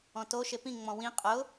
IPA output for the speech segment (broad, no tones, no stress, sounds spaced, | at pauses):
ɔ̃ t o ʃ e p ĩ ŋ͡m ɔ̃ w ĩ qʼ ʊ